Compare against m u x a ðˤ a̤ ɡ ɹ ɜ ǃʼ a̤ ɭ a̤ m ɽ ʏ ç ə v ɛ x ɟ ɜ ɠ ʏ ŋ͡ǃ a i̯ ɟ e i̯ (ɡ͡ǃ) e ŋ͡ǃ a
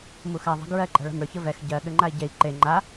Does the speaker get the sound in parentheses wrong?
yes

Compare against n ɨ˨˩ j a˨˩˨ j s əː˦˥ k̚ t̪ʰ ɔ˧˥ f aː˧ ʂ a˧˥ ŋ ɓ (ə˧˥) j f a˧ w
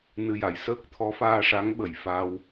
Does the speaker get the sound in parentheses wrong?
yes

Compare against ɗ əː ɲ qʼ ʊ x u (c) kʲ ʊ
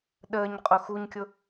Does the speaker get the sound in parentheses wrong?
yes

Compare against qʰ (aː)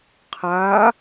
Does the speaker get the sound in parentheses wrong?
no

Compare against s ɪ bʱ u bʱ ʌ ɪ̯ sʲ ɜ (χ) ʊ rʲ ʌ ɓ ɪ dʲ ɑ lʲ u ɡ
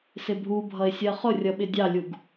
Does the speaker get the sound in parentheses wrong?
no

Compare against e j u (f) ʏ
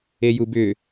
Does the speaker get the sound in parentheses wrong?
yes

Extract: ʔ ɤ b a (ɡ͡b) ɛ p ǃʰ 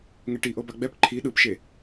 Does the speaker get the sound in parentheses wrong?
no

